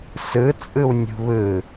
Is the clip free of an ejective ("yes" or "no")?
no